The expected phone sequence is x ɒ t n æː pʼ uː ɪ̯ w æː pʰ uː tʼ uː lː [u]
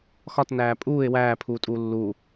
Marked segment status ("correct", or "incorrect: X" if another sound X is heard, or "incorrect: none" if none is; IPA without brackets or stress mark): correct